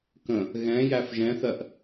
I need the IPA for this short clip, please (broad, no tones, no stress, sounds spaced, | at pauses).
k ə̃ | ɣ ɛ̃ j æ f ʒ ɛ̃ θ ɜ ʔ